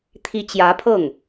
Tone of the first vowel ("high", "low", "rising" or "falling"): high